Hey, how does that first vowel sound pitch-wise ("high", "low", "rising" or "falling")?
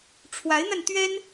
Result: rising